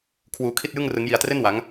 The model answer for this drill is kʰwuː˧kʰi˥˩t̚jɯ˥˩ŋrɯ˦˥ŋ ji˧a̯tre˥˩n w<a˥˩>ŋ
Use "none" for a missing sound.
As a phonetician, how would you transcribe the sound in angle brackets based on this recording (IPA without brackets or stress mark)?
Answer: a˦˥